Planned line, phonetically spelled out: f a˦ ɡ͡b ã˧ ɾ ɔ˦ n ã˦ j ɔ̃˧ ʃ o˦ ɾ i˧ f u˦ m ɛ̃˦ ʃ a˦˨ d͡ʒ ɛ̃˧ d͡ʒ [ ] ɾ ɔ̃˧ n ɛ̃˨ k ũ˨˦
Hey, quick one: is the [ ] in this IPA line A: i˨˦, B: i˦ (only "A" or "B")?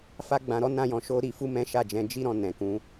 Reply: B